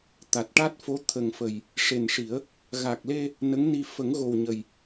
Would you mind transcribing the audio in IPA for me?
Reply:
t̪ a˨˩ t̚ ʈ a˦˥ t̚ f o˧˥ t̪ʰ ə˨˩ ŋ f ə˨˩ j | ʂ e˨˩ n ʂ i˨˩˦ ə̯ | ɣ a˨˩ k̚ l e˧ | n ə˧˥ ŋ n i˧ f ə˨˩˦ ŋ ɣ o˨˩ w ɲ ə˨˩ j

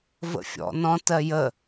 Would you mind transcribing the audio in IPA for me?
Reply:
v ə̰ fʲ ɔ̰ n ɔ̃ t ɜ j ə

